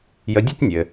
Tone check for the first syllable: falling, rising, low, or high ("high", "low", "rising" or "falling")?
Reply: low